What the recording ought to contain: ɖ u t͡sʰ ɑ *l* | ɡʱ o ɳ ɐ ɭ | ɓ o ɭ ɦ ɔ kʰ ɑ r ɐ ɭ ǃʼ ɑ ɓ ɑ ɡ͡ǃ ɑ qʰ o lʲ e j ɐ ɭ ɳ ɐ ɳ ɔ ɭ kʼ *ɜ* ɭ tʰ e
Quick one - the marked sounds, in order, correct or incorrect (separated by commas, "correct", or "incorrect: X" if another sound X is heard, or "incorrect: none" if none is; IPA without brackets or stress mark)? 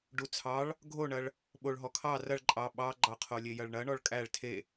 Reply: incorrect: ɭ, incorrect: æ